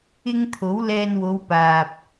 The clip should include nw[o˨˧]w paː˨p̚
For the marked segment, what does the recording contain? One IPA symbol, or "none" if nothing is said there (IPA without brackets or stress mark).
o˨˧